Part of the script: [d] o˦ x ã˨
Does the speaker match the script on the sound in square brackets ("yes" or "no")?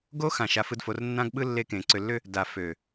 no